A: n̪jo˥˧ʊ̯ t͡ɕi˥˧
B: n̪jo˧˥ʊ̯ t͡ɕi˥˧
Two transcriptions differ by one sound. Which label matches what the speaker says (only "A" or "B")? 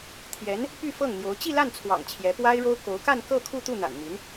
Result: B